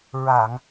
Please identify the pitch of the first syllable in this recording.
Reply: low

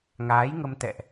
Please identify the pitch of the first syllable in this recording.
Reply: rising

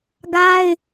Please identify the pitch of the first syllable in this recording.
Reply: high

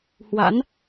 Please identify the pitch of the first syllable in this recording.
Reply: rising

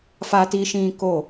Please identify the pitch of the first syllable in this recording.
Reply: high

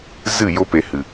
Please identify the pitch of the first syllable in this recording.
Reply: falling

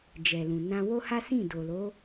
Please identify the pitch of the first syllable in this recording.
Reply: low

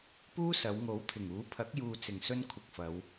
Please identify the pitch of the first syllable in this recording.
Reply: high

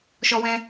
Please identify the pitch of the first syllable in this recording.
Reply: high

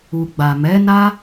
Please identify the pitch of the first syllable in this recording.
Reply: low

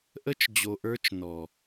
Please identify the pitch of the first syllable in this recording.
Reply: high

